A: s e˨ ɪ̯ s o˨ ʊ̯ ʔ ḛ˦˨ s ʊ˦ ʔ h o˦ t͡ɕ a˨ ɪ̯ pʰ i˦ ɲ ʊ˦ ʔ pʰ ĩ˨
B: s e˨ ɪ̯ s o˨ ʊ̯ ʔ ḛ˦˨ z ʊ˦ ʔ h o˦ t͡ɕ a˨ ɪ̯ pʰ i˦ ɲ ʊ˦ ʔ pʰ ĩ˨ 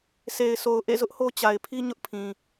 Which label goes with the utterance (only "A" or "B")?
B